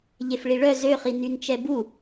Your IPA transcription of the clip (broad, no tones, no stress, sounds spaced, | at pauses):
ʎ e f ɭ i ɭ œ z ø χ i n y n t͡ʃ ɛ b u